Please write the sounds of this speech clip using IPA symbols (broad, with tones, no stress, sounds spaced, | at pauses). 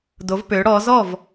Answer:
d o˩˧ v p ø˩˧ ɽ ɔ˩˧ z ɔ˥˨ v